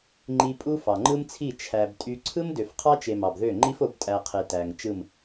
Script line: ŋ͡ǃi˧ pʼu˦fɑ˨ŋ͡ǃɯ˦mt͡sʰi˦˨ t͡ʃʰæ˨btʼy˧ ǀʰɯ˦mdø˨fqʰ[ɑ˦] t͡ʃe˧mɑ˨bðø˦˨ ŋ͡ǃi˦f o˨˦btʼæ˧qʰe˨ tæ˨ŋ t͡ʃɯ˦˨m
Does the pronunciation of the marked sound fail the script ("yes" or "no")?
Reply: no